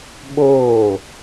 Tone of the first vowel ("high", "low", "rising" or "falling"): falling